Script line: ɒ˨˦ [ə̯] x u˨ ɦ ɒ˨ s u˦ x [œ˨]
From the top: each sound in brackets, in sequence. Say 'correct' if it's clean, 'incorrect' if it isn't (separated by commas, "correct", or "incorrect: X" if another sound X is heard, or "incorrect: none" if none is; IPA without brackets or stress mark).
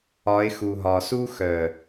incorrect: ɪ̯, correct